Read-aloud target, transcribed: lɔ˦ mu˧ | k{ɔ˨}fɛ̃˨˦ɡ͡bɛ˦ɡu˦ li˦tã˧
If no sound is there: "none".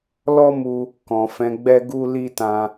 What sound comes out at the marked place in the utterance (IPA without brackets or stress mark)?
ɔ̃˨